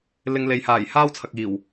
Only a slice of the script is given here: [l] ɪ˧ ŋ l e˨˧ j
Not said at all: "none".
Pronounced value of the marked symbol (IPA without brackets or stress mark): l